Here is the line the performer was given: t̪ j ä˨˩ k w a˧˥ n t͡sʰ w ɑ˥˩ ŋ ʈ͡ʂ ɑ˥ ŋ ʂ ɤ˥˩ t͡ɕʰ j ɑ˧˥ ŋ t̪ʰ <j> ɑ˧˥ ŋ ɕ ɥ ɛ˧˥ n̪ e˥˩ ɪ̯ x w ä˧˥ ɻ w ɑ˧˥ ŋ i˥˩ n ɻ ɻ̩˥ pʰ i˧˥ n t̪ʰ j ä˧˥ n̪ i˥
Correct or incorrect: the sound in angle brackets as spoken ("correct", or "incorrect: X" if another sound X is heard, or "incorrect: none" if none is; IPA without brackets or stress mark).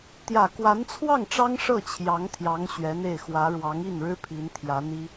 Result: correct